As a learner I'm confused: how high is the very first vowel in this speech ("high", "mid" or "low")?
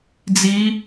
high